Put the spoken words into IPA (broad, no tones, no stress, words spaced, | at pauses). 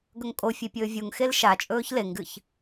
ɡɵŋkʼofʲe pʲɵːvʲuŋxel ʃa t͡ʃʼɵːçleŋɡɨç